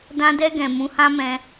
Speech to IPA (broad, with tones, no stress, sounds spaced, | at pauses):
d ã˧ d ɛ˧ ɡ ɛ̃˨ m ũ˧ h ã˦ m ɛ̃˧